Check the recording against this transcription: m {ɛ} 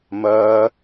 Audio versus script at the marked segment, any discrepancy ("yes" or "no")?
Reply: yes